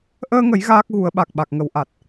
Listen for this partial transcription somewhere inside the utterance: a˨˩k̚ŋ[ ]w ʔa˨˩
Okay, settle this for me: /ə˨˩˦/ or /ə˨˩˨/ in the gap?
ə˨˩˦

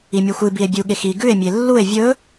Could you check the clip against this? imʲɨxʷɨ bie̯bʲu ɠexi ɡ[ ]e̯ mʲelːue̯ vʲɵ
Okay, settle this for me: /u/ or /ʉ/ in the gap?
ʉ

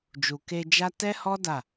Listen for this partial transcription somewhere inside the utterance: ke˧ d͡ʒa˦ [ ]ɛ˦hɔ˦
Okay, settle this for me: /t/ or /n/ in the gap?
t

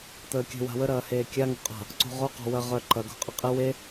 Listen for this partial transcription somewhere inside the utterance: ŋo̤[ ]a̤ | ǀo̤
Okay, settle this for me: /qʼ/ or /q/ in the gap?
qʼ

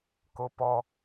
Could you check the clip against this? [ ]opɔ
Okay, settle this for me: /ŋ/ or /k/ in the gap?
k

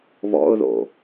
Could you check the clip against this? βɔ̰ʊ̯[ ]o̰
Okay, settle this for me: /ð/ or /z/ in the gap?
ð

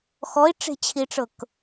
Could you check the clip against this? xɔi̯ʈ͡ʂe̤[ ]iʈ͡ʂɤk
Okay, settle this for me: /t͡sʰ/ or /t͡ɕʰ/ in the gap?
t͡ɕʰ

